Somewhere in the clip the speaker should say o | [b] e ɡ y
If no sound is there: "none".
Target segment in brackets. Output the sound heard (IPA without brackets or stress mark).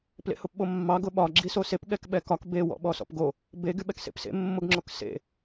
b